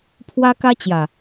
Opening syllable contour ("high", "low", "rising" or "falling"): high